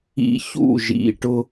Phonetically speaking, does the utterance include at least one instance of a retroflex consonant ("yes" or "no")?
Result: yes